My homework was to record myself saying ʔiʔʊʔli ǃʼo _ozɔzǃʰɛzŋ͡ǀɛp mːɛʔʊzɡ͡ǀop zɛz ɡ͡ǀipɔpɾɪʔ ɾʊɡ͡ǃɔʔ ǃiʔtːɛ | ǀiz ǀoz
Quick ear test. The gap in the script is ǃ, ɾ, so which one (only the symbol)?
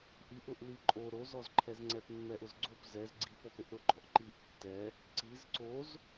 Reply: ɾ